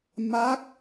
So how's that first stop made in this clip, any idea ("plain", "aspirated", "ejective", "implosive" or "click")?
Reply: plain